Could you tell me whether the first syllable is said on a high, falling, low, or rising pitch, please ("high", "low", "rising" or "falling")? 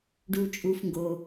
low